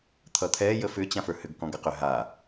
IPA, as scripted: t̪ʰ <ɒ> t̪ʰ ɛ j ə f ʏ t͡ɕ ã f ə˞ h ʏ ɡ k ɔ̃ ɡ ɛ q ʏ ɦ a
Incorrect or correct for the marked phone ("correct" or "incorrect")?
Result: incorrect